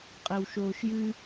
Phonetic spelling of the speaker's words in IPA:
qʼ ɛ w ʃ oː ʃ j ɨ

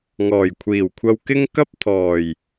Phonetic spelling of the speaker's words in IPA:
ŋ ɔː˨˩ j kʷʰ iː˨˩ w kʷʰ ɐ˧ w k ɪ˥ ŋ k ɐ˥ p̚ t̪ʰ ɔː˨˩ j

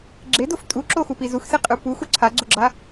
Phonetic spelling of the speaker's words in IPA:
ɡ͡ǁ e d o f tʼ u ǁ o x u p i z u x s e qʼ ɯ p u x u ǀʰ a ɡ͡ǀ o ɡ͡ǁ a

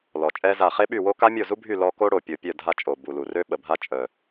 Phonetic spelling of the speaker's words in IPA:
l ɔ˨˩ t͡ʃʼ ɛ˦˥ z a˥˩ χ e˦˥ ɓ y˥˩ w o˦˥ k a˦˥ mʲ o˥˩ z u˦˥ bʱ y˥˩ l ɔ˦˥ k o˦˥ ɽ o˨˩ pʲ o˨˩ pʲ œ˥˩ dʱ a˥˩ t͡ʃʼ o˨˩ b u˨˩ l u˨˩ r ø˦˥ ɓ ə˨˩ bʱ a˦˥ t͡ʃʼ œ˨˩

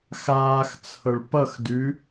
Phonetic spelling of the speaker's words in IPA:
x aː x t͡sʰ ɤ ɭ p ʌ x d ʉ

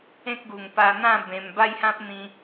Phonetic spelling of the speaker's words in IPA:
ẽ˦ k̚ ɡ u˨˩ ŋ p a˧ n̪ ã˥˧ b ẽ˧ m b a˥˧ j h ã˦ p̚ n̪ ĩ˧

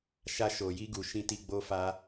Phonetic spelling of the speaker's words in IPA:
ʃ a˧ ʃ o˨ j i˧ ɡ u˨ ʃ ĩ˧ t i˧ ɡ͡b o˦ f a˦

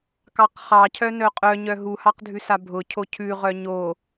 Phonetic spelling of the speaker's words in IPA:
k ɑ q χ ɑ cʰ œ n œ qʼ œ ɲ œ ɦ u h ɑ q dʱ ʉ s a bʱ ʊ cʰ o cʰ ʉ ʁ œ ɲ o

